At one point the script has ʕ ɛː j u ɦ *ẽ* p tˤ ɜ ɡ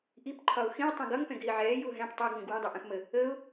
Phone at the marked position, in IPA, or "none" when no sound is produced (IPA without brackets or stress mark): ɛ̃